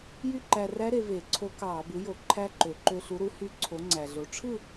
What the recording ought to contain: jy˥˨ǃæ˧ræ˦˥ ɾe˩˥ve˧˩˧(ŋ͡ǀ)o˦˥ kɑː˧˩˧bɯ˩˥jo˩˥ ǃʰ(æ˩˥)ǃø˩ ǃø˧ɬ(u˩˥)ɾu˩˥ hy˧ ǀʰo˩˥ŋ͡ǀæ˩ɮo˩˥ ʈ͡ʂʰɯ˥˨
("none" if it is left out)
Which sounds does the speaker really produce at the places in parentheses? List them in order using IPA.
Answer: ǀʰ, æ˦˥, u˩˥

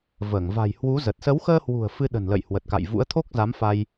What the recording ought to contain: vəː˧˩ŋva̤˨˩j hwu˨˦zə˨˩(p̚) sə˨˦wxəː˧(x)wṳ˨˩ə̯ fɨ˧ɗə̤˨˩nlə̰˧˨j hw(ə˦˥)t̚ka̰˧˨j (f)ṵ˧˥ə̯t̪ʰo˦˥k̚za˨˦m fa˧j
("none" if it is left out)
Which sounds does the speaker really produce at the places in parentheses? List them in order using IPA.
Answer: t̚, h, ə˨˩, v

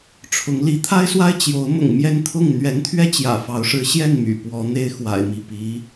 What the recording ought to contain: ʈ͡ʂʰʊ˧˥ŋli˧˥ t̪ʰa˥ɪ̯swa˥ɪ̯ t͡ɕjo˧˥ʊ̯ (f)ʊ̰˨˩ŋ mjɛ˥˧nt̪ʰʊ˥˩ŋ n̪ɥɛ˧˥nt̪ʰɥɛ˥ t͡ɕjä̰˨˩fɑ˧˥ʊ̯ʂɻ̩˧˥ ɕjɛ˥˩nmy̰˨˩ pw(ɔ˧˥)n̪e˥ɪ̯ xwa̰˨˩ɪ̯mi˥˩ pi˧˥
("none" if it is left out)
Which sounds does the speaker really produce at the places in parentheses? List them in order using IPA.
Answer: m, ɔ˧˥

